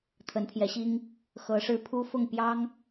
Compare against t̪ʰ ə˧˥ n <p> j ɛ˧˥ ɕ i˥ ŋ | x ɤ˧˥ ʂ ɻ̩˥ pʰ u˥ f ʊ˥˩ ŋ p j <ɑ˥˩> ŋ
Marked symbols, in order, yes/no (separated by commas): no, no